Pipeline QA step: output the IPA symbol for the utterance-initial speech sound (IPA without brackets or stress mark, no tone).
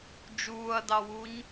d͡ʒ